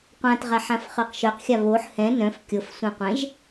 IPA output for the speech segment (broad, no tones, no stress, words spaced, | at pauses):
qʷãtʁaħãfχɤq ʃœqxʲa βoħ hɛ̃ nœ̃f kʲɤfsʷɛ̃qʷɛ̃ʒ